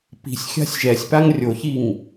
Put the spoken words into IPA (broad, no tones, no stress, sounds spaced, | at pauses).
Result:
p i̤ sʲ xʲ a̤ sʲ ʒ ɛ sʲ p a ŋ rʲ o ç i ŋ